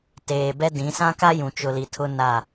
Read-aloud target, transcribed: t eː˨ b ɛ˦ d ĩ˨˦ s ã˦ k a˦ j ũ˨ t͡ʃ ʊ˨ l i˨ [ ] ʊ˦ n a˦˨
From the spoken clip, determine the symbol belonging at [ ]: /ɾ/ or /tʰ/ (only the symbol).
tʰ